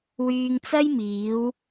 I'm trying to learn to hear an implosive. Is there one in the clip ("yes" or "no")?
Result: no